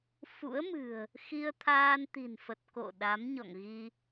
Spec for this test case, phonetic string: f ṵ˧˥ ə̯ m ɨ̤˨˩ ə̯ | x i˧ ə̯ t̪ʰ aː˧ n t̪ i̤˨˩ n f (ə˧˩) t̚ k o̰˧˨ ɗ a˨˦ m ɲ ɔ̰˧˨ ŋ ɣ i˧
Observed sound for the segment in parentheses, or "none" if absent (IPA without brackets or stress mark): ə˨˩